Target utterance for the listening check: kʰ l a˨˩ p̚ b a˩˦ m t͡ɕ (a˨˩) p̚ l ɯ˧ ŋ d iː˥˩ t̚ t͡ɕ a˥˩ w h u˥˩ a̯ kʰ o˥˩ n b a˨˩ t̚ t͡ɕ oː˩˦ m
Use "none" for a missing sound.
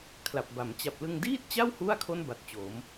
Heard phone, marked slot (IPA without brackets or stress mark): a˨˩